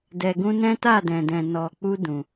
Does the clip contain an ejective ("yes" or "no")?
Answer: no